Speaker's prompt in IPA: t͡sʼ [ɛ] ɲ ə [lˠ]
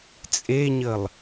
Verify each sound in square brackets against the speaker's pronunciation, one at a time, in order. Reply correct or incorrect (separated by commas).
incorrect, correct